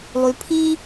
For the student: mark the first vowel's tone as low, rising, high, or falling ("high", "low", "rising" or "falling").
low